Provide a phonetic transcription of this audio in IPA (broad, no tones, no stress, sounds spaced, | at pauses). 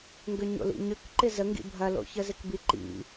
ŋ ɡ ʏ ɲ o̰ l ḭ ɲ ʏ k ǃ ɪ z ə ŋ ɡ ḭ bʱ ɐ l o̰ ç ə z ɪ k b i ǃ ḭ